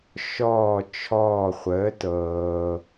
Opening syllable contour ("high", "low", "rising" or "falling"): falling